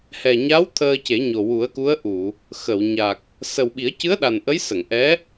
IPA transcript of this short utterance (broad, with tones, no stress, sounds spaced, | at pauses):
h ɛ˨˩ ɲ a˧˥ w t̪ʰ əː˧ c e˨˩˦ ɲ o˨˩ w u˨˩˦ ə̯ k u˧˥ ə̯ ʔ u˨˩˨ | x ə˨˩˨ w ɲ a˨˩ k̚ | s ə˨˩ w ɓ i˨˩˦ ə̯ c ɨ˧˥ ə̯ ɗ a˨˩ n ʔ ə˧˥ j s ə˨˩˨ ŋ ʔ ɛ˧˥